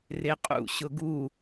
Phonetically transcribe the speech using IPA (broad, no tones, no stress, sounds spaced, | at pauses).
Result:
r e qʼ ṵ ɕ ʊ ɡ u